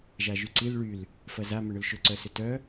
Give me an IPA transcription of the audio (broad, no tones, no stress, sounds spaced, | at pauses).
ʒ a ʒ y ǀ i l ɭ y l | f ɐ z a m ʏ ɳ ʏ l ʃ ʏ ǀ œ s ʏ t œ